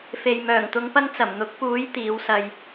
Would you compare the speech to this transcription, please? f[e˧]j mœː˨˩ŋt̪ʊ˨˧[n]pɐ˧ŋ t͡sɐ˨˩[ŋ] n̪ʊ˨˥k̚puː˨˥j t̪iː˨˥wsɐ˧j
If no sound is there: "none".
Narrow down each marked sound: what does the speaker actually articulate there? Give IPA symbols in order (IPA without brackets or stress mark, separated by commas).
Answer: e˨, ŋ, m